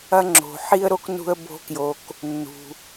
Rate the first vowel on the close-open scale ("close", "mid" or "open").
open